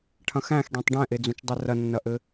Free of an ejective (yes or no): yes